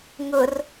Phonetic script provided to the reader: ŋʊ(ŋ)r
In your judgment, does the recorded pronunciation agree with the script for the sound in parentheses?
no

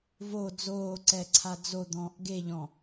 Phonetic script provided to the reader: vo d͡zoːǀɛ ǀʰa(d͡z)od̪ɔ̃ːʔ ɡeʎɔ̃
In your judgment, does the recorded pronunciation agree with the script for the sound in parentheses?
yes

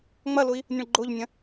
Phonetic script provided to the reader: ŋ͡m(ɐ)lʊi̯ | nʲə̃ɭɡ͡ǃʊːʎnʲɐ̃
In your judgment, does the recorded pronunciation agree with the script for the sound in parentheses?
yes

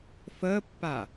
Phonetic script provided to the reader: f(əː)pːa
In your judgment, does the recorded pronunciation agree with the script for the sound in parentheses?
yes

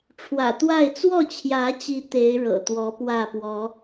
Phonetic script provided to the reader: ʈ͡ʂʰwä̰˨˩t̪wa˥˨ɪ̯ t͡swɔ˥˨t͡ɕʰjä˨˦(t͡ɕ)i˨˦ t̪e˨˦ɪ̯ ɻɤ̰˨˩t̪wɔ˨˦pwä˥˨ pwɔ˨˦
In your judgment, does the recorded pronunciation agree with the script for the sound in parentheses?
yes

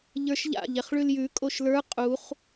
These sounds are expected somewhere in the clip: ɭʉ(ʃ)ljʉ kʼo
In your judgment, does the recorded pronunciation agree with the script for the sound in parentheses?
no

